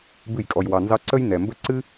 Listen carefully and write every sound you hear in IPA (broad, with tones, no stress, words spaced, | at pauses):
bɨ˦˨jkʼɔ˧jwɑ˧nzɑ˦ ǀə˦j nɛ˨mbə˦ ǀɨ˦